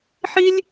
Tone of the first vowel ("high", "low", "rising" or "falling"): high